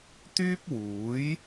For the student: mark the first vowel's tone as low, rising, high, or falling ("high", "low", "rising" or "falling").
high